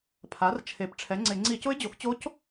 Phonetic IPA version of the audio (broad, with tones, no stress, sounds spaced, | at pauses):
pʰ a˩˥ r t͡ʃʰ e˩˥ p ʈ͡ʂʰ ɛ˩˥ ŋ͡ǀ ɪ˧˩˧ ŋ͡ǀ i˧˩˧ c ʊ˧˥ ɪ̯ d͡ʑ o˩˥ x t͡ɕ o˧˥ c